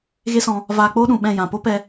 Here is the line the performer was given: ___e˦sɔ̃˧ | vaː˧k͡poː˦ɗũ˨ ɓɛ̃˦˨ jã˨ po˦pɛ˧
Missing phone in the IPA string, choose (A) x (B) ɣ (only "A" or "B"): B